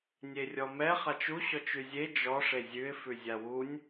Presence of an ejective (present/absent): absent